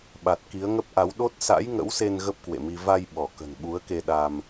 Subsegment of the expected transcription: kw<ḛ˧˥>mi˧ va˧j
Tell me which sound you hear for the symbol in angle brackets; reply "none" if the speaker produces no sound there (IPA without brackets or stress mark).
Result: ḛ˧˨